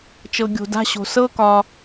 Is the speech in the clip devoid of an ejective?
yes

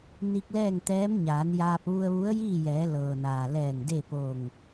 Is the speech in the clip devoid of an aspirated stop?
yes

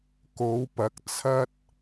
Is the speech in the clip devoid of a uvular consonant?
yes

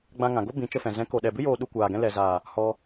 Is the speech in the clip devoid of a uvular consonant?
yes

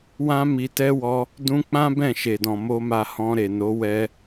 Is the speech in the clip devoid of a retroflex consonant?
yes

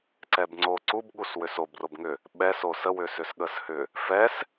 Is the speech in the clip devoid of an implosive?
no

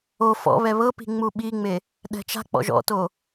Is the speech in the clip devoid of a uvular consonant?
yes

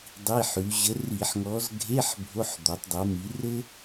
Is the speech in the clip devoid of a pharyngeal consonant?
no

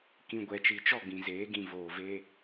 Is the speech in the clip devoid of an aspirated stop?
yes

